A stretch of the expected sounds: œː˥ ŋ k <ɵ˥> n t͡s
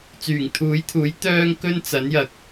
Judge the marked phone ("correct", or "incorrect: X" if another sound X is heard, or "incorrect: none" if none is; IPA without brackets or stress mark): correct